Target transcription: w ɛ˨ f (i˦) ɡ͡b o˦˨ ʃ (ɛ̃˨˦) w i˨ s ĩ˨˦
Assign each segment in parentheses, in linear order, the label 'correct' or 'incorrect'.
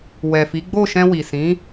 incorrect: i˨˦, incorrect: ɛ̃˧

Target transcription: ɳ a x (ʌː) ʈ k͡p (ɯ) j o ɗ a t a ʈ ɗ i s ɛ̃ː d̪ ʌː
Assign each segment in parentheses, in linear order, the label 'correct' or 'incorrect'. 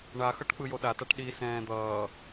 incorrect: ʌ, correct

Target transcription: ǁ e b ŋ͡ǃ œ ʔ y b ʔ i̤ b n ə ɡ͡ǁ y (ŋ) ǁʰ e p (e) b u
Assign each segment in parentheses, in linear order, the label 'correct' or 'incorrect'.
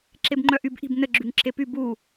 correct, incorrect: y

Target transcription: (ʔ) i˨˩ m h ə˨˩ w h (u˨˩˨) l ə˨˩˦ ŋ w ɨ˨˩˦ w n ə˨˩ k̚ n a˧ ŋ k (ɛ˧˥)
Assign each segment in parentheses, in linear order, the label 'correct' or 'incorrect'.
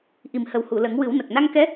correct, correct, correct

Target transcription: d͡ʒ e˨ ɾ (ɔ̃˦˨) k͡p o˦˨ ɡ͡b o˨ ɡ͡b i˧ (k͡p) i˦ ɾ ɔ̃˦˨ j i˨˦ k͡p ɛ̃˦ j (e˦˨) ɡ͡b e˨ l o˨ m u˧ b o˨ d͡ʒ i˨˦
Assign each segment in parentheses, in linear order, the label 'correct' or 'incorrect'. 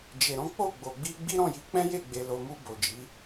incorrect: ɔ̃˨˦, incorrect: ɡ͡b, correct

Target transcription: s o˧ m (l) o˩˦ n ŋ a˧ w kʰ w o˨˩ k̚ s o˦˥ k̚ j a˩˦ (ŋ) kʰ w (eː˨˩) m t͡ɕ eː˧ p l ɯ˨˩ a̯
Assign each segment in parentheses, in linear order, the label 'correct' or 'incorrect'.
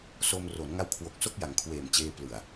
incorrect: r, correct, correct

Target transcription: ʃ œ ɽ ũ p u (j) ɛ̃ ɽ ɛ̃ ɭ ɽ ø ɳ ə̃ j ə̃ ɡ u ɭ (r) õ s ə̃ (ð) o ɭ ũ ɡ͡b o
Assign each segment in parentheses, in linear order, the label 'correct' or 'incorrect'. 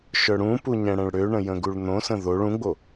incorrect: ɲ, incorrect: n̪, correct

